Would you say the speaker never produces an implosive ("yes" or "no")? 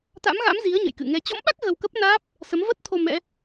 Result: no